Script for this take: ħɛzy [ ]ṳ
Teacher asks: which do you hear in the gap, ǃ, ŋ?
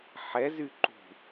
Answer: ǃ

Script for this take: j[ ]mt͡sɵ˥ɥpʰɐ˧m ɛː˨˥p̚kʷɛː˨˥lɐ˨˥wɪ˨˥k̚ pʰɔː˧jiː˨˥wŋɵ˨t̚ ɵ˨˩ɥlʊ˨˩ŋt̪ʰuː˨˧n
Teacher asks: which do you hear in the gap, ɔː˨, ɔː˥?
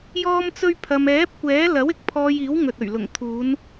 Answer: ɔː˥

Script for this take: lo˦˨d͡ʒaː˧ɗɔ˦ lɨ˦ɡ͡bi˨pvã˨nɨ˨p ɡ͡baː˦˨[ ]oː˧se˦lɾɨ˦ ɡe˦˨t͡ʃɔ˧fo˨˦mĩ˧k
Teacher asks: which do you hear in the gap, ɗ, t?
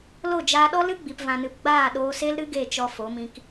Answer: ɗ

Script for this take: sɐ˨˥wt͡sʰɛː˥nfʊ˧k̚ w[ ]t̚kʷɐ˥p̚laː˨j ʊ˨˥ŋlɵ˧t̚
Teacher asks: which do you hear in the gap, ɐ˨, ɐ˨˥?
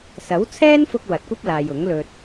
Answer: ɐ˨˥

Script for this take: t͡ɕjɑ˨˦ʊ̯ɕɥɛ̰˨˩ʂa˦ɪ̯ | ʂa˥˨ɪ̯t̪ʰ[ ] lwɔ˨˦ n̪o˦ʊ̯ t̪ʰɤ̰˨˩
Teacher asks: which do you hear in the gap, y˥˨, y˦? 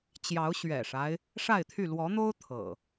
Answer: y˥˨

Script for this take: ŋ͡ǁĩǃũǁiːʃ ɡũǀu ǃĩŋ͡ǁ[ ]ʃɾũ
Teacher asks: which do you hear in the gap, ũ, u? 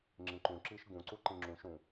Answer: ũ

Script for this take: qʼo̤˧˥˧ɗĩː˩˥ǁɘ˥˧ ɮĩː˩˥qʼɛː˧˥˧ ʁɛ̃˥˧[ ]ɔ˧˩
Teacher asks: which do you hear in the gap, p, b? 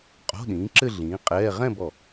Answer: b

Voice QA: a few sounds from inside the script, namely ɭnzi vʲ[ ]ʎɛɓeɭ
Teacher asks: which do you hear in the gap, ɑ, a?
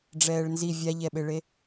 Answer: a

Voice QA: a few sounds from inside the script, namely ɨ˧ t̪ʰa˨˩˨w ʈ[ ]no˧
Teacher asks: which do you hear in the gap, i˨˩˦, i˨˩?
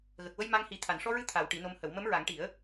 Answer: i˨˩˦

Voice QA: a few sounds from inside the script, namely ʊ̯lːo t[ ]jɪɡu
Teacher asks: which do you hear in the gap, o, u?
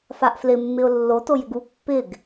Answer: o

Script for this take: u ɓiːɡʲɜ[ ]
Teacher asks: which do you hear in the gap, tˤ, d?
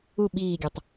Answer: tˤ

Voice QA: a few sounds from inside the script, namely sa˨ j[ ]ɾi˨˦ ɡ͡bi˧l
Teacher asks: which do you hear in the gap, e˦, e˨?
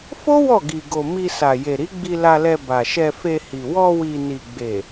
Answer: e˨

